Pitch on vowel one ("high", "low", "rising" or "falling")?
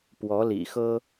rising